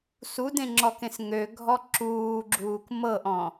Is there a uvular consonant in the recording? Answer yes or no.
no